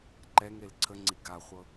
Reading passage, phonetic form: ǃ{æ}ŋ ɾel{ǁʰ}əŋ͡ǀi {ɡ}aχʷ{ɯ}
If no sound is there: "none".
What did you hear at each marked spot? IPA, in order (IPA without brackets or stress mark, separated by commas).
ɛ, ǀʰ, ɡ, ɤ